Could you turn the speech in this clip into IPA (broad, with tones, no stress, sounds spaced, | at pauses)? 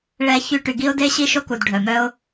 ɭ ɛ˦ ç y˦ ʈ y˨ ɡ i˥ ʊ̯ d e˥ ɕ i˥ ʃ o˥ k u˩ d ɖʱ œ˩ m œ˥ ʊ̯